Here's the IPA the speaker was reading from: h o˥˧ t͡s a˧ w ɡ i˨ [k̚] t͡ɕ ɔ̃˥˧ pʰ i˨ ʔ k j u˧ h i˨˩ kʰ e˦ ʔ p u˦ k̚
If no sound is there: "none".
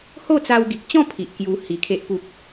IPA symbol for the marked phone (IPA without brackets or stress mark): k̚